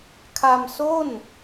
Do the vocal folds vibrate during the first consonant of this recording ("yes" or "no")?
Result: no